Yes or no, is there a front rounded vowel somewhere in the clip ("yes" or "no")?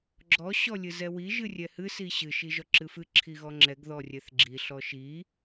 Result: no